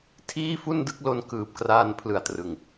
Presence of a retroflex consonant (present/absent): absent